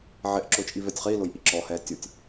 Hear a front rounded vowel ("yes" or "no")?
no